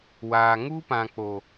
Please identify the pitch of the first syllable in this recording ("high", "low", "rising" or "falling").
low